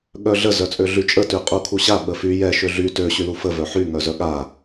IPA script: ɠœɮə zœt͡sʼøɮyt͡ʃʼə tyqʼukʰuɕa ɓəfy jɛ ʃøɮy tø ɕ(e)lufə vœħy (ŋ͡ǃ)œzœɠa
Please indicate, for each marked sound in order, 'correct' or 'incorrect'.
incorrect: y, incorrect: ŋ

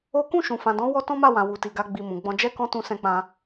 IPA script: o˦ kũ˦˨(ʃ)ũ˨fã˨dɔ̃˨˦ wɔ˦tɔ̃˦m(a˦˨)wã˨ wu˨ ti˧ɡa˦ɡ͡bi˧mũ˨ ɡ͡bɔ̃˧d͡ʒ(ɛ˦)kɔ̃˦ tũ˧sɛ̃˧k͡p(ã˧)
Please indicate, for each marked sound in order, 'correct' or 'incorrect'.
correct, correct, correct, correct

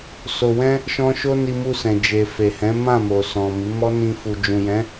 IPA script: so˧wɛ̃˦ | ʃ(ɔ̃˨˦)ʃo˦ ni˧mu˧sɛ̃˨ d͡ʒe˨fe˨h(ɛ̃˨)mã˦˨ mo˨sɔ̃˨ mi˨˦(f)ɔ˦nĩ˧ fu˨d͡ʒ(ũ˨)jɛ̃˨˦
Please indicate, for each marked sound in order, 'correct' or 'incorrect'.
incorrect: ɔ̃˦, incorrect: ɛ̃˨˦, incorrect: m, correct

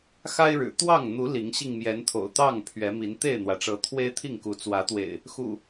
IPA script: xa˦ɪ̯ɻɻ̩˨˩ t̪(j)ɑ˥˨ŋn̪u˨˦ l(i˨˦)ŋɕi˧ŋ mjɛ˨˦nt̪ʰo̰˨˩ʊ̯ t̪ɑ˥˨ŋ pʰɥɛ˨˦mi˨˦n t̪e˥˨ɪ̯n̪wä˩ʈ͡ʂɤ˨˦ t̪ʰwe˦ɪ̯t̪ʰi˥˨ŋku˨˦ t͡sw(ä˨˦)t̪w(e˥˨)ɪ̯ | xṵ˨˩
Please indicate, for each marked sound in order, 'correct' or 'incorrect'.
incorrect: w, correct, correct, incorrect: ḛ˨˩

